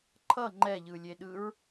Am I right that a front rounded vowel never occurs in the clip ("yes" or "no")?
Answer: yes